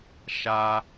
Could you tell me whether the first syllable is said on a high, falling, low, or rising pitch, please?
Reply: high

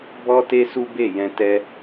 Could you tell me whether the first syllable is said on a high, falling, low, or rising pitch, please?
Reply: high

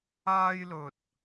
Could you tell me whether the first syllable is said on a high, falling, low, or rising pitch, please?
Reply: high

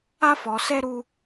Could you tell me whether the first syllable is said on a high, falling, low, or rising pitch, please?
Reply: high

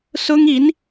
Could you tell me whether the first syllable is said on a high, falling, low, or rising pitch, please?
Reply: high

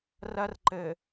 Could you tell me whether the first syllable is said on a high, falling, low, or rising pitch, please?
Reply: high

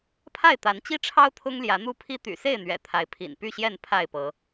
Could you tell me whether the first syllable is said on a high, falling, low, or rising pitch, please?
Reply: falling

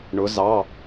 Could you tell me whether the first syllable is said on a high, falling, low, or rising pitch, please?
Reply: rising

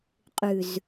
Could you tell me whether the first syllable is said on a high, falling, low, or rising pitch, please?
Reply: low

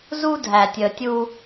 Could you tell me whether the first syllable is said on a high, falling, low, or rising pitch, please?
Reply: high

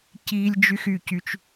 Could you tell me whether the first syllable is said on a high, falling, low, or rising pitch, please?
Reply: high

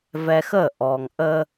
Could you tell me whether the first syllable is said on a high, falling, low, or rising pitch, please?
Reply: low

